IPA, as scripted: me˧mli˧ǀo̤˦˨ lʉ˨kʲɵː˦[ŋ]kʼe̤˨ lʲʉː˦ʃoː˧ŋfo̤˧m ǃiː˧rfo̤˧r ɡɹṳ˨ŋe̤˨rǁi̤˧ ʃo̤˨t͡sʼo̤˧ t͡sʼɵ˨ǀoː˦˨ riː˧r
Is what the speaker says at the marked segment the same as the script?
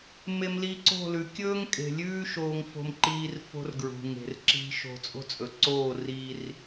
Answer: yes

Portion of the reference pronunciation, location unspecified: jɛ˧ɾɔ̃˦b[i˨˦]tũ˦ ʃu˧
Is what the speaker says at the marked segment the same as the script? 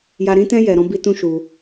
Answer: no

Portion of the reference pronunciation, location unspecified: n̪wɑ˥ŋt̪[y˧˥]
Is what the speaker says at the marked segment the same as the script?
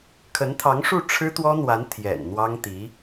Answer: no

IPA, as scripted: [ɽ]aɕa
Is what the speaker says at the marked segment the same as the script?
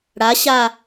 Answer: yes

